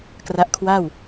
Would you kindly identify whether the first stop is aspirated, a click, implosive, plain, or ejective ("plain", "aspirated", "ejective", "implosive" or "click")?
plain